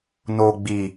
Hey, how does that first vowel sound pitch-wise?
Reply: low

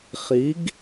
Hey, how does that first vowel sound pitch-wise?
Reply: rising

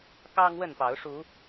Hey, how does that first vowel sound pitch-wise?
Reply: high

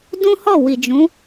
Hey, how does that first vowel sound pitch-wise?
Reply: high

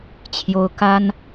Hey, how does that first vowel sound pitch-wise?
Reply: high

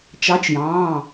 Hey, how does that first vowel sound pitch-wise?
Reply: rising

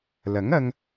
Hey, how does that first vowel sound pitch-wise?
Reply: rising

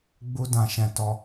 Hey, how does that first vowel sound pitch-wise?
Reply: high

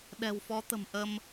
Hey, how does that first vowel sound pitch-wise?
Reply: low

